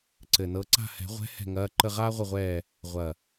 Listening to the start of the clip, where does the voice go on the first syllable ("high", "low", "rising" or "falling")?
low